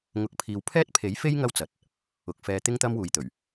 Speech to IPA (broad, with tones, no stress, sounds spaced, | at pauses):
ŋ ʊ˨ k̚ pʰ iː˨ w pʰ ɛː˥ t̚ pʰ e˨˥ j f e˥ j ŋ ɐ˥ w t͡s ɐ˨ t̚ | ʊ˨ k̚ f ɛː˧ t̪ ɪ˥ ŋ t̪ ɐ˥ m w uː˨ j t̪ ɵ˨˩ ɥ